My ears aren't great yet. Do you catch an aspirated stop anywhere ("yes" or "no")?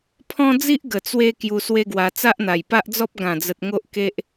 yes